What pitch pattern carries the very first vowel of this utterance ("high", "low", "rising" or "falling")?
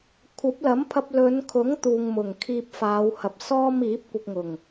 rising